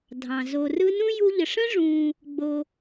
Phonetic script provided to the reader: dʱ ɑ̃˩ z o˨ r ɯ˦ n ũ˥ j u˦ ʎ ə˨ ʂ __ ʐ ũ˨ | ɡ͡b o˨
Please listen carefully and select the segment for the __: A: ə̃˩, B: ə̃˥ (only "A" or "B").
B